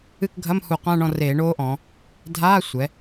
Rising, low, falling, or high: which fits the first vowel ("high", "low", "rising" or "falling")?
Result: falling